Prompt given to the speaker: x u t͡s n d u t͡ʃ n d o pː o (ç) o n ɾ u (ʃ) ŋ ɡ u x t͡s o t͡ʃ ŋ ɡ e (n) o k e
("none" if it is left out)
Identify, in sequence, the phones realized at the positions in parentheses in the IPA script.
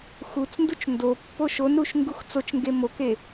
ʃ, ʃ, m

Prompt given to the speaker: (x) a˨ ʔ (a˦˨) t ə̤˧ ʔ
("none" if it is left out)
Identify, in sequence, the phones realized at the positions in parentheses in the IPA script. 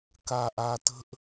k, a˨

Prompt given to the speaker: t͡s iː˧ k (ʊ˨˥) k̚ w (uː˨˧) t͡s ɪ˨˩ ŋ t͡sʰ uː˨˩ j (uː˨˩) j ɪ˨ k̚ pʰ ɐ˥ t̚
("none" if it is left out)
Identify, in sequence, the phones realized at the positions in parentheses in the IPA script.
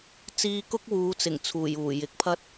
ʊ˥, uː˨˧, uː˨˩

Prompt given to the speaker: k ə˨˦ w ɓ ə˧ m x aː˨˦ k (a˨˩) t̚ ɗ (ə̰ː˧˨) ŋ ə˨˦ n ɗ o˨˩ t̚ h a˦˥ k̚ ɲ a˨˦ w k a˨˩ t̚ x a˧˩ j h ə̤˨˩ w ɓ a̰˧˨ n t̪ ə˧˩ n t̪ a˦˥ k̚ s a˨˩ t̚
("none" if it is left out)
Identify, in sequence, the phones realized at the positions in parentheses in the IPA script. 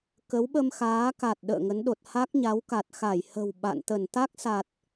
a˨˩, ə̰ː˧˨

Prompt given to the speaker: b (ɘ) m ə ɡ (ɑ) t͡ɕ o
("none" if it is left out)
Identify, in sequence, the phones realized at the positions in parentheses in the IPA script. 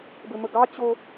ɘ, ɑ

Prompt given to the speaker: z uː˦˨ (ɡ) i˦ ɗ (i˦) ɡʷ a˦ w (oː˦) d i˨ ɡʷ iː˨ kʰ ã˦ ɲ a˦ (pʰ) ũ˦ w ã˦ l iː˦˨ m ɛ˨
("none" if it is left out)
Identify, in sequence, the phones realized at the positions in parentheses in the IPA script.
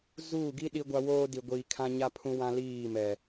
ɡ, i˦, oː˦, pʰ

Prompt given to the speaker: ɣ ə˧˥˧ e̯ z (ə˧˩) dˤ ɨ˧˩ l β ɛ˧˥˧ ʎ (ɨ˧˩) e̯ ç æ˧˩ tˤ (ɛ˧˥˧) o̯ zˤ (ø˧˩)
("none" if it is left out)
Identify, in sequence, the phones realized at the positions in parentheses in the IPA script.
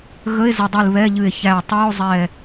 ə˧˩, ɨ˧˩, ɨ˧˥˧, ɛ˧˩

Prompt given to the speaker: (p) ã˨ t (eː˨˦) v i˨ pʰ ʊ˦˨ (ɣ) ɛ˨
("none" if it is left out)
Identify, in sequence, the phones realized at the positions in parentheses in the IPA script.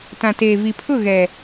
t, eː˨, ɣ

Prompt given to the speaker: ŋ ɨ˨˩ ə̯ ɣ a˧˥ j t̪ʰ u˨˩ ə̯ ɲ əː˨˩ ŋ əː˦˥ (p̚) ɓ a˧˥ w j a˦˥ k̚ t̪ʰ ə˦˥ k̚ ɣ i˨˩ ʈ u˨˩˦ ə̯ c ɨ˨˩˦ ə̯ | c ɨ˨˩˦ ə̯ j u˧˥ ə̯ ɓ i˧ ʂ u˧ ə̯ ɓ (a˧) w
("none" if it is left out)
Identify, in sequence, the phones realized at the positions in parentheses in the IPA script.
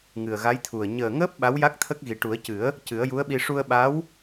p̚, a˧˥

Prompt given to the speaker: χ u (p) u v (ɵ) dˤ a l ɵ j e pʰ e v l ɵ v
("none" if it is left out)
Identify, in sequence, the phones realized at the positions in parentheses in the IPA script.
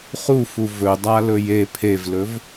f, ɵ

